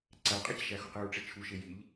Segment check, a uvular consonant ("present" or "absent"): present